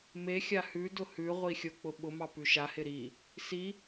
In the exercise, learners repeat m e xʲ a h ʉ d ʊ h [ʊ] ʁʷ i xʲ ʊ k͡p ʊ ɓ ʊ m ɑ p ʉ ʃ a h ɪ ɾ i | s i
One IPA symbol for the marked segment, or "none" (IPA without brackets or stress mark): ʉ